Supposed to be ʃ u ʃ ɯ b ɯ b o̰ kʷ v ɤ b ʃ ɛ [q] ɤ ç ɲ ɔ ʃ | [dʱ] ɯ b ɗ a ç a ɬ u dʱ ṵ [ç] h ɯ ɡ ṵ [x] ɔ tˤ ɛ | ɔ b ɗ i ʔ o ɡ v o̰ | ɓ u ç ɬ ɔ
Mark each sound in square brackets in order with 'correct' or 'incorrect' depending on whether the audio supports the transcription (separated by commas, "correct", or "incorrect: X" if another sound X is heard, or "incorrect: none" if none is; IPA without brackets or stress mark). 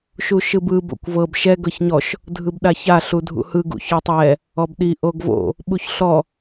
incorrect: ɡ, correct, incorrect: none, incorrect: ç